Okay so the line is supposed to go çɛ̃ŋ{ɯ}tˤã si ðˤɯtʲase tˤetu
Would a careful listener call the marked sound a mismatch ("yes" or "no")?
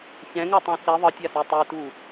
yes